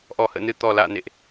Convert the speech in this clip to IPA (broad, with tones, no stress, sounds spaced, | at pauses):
ʔ ɔ˧˩ h ə̰ː˧˨ n ɨ˨˩ t̪ ɔ˨˩ l a̰ː˧˨ n ḛ˧˨ ʔ